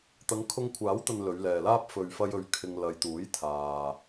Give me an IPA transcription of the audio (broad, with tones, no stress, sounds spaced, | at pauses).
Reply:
t̪ ɐ˨˧ ŋ kʰ ʊ˧ ŋ kʷʰ aː˨˥ w t̪ ɐ˨ n l ɵ˨˧ ɥ l ɛː˨ l aː˥ p̚ f ɵ˨ ɥ f ɐ˧ j ɵ˨ ɥ kʰ ɪ˧ ŋ l ɐ˨ j t̪ uː˨˥ j t̪ʰ aː˨